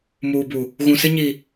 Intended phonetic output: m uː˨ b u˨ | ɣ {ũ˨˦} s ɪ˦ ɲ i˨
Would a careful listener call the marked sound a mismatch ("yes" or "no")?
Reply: yes